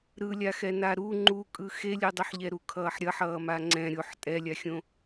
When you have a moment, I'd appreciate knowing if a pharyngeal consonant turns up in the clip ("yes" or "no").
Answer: yes